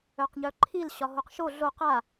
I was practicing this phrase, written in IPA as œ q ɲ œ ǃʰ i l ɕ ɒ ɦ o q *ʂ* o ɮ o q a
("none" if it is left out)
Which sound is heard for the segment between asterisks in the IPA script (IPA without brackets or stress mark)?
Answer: ʃ